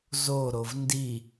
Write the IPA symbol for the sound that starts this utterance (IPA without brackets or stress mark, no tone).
z